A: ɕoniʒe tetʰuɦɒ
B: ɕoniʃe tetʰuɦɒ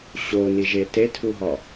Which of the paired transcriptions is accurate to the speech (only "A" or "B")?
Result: A